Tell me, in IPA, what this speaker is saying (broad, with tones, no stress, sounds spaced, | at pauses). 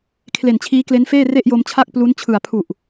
kʰ l e˨˩ n t͡ɕʰ iː˦˥ k l e˦˥ n f eː˥˩ r e˥˩ ʔ j o˧ m t͡ɕʰ a˥˩ k̚ p l u˦˥ n t͡ɕʰ ɯ˨˩ a̯ pʰ u˨˩ ʔ